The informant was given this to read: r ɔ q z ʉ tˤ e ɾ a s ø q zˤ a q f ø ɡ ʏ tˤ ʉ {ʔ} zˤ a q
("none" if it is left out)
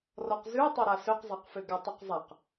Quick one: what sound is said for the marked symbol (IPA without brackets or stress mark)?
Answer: q